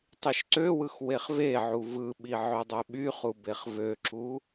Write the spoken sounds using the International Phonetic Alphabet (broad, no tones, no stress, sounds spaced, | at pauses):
tˤ i ʃ ǀ ø w ɯ x w e χ v e ʕ u v ɯ ɓ i ʕ ø dˤ ø ɓ y χ u b e χ v ø ǁ u